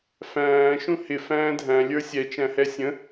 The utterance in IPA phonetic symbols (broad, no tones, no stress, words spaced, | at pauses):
fæ̃ː ʃũhɪ fæ̃ːdʱæ̃ lʲə˞sʲɛ t͡ʃæ̃hɛsʲə̃